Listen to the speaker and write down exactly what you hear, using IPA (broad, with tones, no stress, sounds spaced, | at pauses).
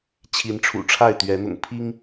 t͡ɕʰ i˨˦ n ʈ͡ʂʰ ṵ˨˩ ʈ͡ʂʰ a˥˨ ɪ̯ t̪ ɥ ɛ˨˦ n̪ ʊ̰˨˩ ŋ pʰ i˦ ŋ